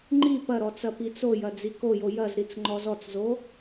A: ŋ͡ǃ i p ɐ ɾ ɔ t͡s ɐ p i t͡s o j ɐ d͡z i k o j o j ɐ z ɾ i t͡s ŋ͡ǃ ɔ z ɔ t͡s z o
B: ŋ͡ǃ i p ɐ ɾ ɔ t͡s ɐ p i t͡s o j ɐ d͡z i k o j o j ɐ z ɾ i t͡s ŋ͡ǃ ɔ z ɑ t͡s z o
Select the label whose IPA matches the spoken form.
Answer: A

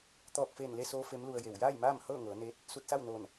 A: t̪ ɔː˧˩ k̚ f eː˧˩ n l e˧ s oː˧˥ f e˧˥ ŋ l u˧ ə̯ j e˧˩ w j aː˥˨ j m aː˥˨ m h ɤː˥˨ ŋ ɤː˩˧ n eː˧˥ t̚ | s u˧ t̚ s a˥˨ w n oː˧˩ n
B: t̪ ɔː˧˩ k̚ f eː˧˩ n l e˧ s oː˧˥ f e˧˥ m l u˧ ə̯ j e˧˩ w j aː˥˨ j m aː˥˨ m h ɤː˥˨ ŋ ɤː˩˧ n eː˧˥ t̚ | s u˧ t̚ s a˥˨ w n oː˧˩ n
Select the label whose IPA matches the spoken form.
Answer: B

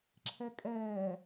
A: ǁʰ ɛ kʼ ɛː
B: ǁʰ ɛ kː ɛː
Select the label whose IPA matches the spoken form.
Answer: A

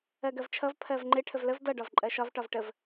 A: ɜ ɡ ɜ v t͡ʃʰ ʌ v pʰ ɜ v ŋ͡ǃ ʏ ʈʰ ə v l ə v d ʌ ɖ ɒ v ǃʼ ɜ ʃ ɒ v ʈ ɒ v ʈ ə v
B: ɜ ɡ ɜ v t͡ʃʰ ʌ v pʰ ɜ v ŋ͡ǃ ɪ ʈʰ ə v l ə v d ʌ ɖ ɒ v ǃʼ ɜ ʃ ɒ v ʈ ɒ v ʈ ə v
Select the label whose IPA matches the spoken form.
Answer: B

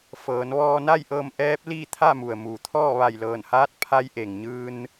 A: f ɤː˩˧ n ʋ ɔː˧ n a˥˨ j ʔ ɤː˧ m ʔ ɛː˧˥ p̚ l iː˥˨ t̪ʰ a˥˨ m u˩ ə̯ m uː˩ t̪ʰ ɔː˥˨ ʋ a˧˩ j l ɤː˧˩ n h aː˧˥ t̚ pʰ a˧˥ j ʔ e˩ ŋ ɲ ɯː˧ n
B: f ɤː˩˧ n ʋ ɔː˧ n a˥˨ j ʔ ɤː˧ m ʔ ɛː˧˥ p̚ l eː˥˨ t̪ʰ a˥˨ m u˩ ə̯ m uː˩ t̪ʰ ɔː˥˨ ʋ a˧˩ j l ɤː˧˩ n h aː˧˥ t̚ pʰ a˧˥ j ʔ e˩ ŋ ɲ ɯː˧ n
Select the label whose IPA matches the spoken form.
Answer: A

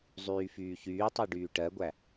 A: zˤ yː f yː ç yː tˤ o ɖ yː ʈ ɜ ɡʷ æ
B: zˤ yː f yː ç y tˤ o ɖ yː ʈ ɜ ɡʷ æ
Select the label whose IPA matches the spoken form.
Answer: A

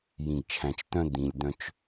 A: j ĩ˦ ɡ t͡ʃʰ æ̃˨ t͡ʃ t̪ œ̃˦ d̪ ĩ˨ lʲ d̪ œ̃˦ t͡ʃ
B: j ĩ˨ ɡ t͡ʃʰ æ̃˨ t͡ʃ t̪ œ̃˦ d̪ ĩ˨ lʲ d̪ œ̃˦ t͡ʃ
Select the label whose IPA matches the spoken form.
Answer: B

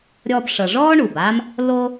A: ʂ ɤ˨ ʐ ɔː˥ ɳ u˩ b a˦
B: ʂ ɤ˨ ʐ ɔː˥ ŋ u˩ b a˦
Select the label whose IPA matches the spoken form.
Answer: A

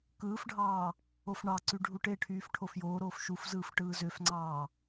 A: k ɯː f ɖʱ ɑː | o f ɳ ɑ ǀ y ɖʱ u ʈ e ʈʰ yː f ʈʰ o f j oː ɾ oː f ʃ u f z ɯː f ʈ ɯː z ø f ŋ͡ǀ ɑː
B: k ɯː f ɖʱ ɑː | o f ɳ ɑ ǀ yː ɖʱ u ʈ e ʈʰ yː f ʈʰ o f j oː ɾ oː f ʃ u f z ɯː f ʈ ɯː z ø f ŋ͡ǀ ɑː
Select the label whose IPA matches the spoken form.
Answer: A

